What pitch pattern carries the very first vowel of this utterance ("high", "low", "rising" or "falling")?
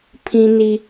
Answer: high